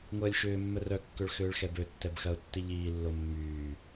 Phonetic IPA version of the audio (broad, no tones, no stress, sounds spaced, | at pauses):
ŋʷ ɐː lʲ ʃ ʏː mː œ r œ kː ø ɭ x ʏː ɭ x ɛ b ø tː ɛ b x ɐ ʊ̯ tː i ʎ iː lː o mː yː